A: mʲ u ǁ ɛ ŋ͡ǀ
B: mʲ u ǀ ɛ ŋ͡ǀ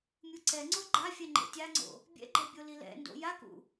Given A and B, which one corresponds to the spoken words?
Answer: B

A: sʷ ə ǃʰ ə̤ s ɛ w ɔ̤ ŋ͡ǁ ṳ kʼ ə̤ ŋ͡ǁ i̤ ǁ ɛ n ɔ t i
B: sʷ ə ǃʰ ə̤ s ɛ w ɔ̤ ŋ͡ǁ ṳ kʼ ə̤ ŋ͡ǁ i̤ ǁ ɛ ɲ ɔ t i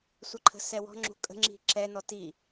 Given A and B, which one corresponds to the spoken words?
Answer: A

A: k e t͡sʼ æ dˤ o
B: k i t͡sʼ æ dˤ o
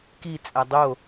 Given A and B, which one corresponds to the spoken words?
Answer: B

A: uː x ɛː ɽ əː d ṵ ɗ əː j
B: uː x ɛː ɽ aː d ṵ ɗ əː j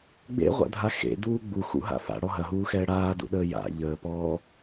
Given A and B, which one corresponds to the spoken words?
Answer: B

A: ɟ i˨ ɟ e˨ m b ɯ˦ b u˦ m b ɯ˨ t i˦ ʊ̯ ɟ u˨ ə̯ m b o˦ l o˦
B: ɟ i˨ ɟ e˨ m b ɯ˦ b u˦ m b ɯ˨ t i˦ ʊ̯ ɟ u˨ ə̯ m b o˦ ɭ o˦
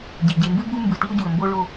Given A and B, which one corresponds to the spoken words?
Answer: B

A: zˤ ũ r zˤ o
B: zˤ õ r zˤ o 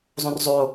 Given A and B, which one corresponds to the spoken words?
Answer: B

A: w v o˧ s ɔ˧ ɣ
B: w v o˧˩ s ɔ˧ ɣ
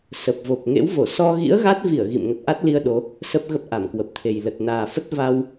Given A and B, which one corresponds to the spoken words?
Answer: B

